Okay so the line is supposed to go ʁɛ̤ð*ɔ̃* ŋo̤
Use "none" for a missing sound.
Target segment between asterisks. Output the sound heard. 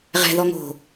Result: ɔ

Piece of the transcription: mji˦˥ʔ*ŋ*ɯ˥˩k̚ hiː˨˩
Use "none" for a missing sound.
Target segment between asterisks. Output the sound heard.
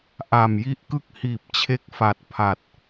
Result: k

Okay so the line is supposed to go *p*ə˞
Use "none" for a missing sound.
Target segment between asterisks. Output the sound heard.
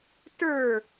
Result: t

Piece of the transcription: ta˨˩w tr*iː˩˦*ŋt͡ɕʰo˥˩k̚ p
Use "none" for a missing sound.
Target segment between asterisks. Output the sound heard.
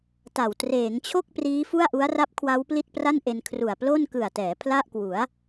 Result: eː˩˦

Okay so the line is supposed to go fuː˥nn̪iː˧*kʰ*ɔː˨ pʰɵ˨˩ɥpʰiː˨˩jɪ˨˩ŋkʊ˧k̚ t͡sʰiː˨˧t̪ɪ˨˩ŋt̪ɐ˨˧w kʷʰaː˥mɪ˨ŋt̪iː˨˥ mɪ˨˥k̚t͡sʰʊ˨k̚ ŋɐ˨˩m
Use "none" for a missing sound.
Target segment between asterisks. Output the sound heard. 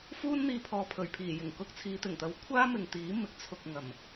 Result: pʰ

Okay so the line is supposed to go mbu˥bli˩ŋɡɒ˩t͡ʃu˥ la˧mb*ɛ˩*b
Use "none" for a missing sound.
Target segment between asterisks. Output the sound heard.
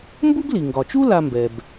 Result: ɛ˩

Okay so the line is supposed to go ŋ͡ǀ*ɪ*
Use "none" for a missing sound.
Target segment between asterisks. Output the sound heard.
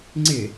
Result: ɪ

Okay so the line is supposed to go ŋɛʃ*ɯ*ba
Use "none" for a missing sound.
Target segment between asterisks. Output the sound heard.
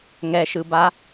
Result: ɯ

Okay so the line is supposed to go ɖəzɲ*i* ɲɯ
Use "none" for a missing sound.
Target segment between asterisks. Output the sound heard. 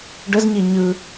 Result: i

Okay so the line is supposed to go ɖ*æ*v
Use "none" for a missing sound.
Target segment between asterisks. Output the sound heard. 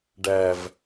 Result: æ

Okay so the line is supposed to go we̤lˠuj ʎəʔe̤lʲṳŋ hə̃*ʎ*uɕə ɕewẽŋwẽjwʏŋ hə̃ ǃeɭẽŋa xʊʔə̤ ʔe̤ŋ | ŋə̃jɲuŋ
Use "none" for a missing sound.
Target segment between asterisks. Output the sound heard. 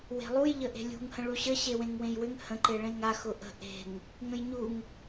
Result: ɭ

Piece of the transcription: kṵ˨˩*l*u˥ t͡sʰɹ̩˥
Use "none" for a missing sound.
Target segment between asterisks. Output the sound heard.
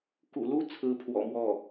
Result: l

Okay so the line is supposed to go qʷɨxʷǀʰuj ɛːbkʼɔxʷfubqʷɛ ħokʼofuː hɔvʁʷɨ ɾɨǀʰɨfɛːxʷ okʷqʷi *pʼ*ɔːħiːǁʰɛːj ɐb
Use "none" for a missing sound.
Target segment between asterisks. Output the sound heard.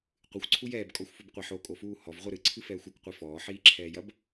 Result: f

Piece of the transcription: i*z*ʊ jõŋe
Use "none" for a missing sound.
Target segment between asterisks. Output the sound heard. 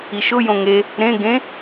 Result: ʃ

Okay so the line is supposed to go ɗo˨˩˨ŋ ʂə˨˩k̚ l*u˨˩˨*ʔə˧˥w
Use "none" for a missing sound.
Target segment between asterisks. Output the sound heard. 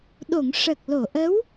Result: o˨˩˨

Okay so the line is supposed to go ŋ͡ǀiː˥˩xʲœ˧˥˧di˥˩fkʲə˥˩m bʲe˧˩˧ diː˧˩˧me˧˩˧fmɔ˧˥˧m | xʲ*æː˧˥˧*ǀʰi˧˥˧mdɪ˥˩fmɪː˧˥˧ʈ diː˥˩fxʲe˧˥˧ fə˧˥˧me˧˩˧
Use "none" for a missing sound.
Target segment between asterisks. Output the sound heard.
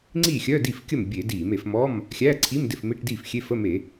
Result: æː˧˥˧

